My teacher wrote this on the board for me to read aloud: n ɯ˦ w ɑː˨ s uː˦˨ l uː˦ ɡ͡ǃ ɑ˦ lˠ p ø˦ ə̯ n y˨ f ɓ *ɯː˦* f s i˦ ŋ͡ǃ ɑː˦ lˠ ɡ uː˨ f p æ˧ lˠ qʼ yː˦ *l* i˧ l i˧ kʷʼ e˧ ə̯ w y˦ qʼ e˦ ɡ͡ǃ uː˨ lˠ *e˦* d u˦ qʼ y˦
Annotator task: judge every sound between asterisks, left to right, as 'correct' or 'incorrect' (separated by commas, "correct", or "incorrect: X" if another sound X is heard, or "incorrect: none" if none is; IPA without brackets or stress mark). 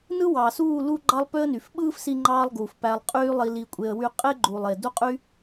correct, incorrect: lˠ, incorrect: e˨